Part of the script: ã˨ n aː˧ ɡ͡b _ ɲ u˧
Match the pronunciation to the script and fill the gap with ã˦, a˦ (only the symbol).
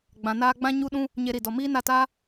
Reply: ã˦